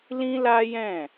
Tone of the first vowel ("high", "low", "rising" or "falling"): high